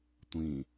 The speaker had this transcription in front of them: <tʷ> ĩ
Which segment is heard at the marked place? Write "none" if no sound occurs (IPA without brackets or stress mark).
tʷ